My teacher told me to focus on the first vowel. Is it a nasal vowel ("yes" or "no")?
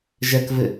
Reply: no